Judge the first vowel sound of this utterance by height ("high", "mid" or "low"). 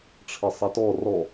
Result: mid